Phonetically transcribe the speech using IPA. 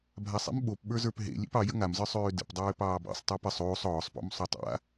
bʱasˤḛm ɓopɓə˞zə˞p ɦḛ lʲḛpɑ jə̰ŋamzə˞ sˤøːdə̰pdˤøː pɑːbɑ̰sˤ tˤɑpəsˤ oːsˤ ɔːsˤpɔ̰m sˤotˤa̰

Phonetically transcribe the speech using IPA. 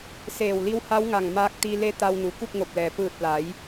seː˧˩wli˧wha˧˥wŋa˧˩ŋ maː˧k̚t̪i˧le˧˥ t̪a˧wnu˩ ku˥˨k̚ŋo˧˩p̚lɛː˩ pɯː˧˩t̚la˩˧j

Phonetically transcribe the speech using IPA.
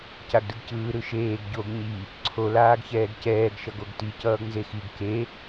caɡdɯɡcɯː ɾɯʃeːɡ ɟoɡ ɲi | ǀʰo laːɡçɛːɡcɛːɡ ʃʌɡoɡti cʌːɡnzexiɡ ke

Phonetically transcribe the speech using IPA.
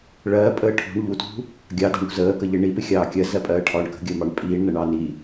ɭɜːpʼəː ʈʰṳɳ ʎutṳ | ɡʲɑdɑ̤ɳṳ zəːkəʎɪ ɳipɪxʲɑː kʲɜzɜpʼɜːʈʰɒːɳ kə̤ɡʲəːmɑɳ pʼiːɳnʌɳɑː ni

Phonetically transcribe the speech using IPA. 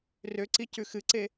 røǀi cʉxɨǀe

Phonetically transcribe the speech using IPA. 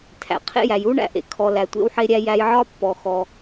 tʰæ̰˩qʰḛ˥jæ˩j u˥ɳæ̰˧ ʔḛ˩kʰɔ˩ læ˩tʷḛ˧wħe˧ɾʲæ˧ jæ˧jʕɒ˥pːɔ˩ xɔ˩

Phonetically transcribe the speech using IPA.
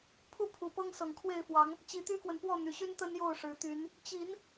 pʰu˦pʰu˨˩pɤ˦ŋ sɤ˨˩ŋkʰwe˥˨ɪ̯fwɑ˨˦ŋ | t͡ɕi˨˦t̪y˦kwə˨n pwɔ˥˨ n̪y˨˩ɕy˦n t̪ə˦njo˥˨ʊ̯ʂɻ̩˨˩t̪y˨˦n | t͡ɕi˨˦n

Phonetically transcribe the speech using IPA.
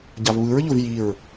ɟavβɯɹʎʊv jiɹ

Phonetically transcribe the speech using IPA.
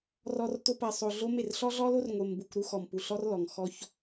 rɔ˦rto˦ pɜ˨sˤo˨ ɮo˦me˦˨r ɬɔ˦ɮɔ˦lo˦r ŋʷe˨mbu˨kʷ ɾu˦xɔ˨mpu˨ɬɔ˦r lɔ˨ŋ xɔ˦ç

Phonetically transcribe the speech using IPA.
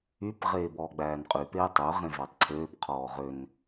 yp ʁeːbɔːɡ͡bæːnqʼy peːtˤø ʁẽvætˤǀʰøːp qʰɔːʁøn

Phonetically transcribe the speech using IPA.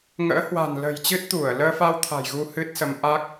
ŋə̰ː˧˥hwa̤˨˩nlə̤˨˩jt͡ɕɨ˦˥t̚ t̪u˧˩ə̯ləː˧fa˧w t̪ʰa̤˨˩jɣu˧ hɨ˦˥t̚sə˨˦mʔa˦˥k̚

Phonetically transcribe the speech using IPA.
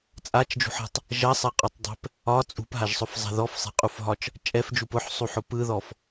t͡sʼat͡ʃd͡ʒṳħe̤tˤ | ʒɐsˤɛqʼɔtˤdˤe̤p | ɒ t͡sʼṳpɦaʒsˤʊfzˤa̤ ðɔfsˤe̤qʼufɦɒt͡ʃ | t͡ʃʼɛfd͡ʒup ʊħsˤuħʊ pɯðɔf

